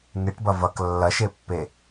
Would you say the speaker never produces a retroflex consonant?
no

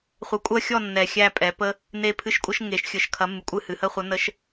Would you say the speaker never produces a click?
yes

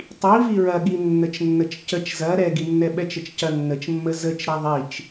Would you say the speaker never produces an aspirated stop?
yes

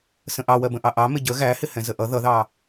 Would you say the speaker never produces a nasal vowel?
no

